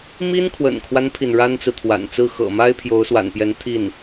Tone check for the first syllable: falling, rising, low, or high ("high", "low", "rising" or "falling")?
high